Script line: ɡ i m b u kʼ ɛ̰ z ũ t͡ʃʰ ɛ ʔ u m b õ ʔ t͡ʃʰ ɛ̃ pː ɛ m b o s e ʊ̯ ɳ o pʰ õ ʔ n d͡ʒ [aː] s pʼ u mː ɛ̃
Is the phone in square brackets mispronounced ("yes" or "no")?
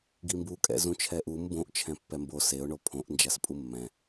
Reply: yes